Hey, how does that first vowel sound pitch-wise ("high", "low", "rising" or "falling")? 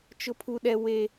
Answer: high